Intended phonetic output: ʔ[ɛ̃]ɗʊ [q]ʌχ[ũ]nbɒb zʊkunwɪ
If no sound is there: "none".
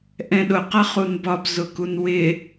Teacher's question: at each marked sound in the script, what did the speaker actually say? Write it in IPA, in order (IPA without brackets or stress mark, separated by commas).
ɛ̃, q, u